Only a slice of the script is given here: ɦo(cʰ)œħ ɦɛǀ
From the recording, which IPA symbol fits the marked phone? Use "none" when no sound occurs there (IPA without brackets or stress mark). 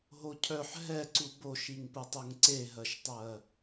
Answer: cʰ